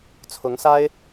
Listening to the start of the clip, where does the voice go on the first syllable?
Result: rising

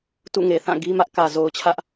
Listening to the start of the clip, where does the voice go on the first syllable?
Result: falling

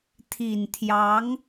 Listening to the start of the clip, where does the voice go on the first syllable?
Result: low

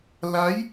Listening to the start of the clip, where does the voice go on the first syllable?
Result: rising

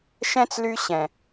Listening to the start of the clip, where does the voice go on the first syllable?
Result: high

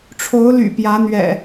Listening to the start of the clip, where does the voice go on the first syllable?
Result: rising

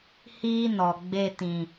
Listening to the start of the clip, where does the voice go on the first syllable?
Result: high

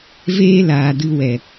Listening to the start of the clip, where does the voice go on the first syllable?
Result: high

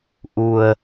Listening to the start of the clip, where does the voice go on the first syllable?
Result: low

